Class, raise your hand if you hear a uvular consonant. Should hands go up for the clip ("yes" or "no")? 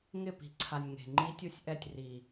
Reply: no